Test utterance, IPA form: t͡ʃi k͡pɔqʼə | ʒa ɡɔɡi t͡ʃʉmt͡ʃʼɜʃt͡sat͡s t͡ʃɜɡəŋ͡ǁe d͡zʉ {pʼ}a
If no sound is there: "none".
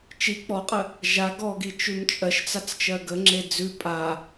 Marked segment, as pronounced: pʼ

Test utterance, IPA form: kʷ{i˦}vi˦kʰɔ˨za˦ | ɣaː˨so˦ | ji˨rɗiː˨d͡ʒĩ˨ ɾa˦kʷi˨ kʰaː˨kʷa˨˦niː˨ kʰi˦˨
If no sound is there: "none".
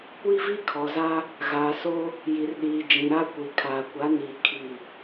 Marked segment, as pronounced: i˦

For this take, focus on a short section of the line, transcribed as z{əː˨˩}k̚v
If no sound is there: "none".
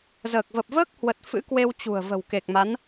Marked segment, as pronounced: əː˨˩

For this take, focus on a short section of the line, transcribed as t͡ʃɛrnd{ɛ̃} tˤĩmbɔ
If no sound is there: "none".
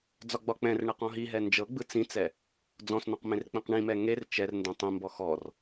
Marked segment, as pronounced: ɛ̃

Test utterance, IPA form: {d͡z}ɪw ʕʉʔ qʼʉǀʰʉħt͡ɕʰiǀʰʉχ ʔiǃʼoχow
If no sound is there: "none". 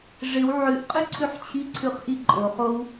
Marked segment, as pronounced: ʐ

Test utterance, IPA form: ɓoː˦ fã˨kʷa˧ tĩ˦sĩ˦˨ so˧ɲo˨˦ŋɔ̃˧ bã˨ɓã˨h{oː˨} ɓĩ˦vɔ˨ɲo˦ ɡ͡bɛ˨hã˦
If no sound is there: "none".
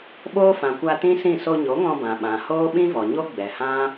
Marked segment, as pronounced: oː˦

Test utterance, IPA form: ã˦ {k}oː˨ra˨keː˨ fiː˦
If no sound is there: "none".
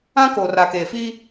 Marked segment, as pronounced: k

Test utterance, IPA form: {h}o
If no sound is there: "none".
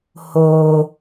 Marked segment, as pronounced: h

